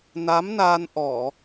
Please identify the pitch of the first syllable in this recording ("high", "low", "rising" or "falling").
rising